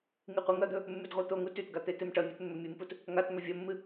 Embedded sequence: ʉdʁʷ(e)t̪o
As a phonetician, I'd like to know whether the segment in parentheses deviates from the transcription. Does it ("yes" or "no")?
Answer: yes